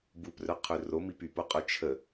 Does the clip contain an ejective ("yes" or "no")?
yes